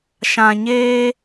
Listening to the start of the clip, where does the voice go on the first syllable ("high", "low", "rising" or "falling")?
low